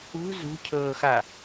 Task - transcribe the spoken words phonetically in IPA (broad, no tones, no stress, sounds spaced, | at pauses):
ṳ z ṳ cʰ ɤː x a